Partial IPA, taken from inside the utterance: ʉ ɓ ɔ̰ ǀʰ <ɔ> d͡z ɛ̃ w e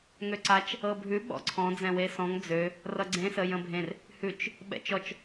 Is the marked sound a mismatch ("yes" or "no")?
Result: yes